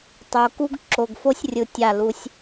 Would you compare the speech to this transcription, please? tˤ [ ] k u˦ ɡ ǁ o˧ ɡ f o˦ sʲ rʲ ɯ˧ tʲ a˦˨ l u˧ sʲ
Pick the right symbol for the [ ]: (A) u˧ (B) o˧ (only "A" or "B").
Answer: B